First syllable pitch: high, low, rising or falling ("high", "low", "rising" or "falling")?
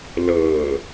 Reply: low